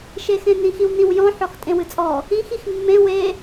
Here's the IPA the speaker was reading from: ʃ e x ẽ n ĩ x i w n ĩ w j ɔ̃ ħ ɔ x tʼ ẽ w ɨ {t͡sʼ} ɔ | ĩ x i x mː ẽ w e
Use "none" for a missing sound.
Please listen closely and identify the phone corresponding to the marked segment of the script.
t͡sʼ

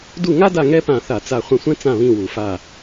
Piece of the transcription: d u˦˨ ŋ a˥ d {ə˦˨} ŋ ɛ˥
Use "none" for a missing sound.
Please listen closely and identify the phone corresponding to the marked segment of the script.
a˦˨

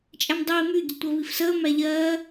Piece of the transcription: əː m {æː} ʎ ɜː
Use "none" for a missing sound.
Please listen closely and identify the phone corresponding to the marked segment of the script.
æ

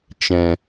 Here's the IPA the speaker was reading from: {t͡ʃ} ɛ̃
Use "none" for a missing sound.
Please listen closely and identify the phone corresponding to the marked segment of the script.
t͡ʃ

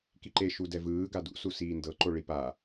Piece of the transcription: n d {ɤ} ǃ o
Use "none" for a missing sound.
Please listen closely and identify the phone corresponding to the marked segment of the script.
ɤ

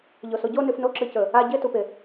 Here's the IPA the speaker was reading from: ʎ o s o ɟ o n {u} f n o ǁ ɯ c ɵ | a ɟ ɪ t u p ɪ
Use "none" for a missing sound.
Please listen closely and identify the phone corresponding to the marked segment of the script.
ʉ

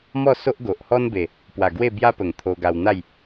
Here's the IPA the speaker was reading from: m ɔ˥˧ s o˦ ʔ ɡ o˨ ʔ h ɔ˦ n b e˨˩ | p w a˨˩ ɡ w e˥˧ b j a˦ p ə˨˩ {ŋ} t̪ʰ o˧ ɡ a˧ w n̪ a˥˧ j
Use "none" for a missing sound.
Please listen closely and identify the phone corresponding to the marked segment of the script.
ŋ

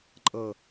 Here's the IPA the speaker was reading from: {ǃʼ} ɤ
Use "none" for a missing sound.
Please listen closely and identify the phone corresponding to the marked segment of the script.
ǃʼ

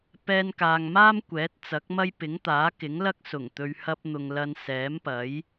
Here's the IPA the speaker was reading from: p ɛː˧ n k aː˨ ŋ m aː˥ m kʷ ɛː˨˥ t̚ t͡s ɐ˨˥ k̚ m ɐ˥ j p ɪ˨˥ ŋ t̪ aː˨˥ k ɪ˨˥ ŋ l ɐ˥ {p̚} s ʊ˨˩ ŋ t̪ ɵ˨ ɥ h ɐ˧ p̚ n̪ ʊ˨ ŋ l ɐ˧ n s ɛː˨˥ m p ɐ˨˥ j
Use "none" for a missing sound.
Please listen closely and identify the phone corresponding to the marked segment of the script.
k̚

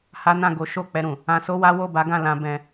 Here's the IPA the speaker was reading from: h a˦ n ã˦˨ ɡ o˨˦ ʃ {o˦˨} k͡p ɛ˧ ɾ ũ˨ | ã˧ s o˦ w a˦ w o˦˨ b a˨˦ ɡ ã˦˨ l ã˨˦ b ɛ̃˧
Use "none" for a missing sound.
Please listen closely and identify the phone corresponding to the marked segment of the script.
o˦˨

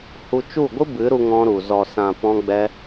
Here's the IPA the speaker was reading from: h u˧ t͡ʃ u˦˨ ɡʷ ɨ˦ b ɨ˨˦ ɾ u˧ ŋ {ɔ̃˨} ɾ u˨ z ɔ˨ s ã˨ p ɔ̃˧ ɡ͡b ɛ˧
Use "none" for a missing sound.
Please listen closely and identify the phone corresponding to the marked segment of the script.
ɔ̃˧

